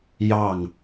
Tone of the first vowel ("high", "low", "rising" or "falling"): falling